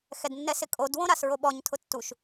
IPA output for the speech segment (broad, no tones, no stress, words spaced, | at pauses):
xɛdnːɛsɪkʼod wõɾasɹoɓɔɲ tʰʊtːuʃ